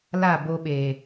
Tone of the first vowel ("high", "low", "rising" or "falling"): falling